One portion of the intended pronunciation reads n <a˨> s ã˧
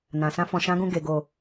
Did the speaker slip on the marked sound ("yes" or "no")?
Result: yes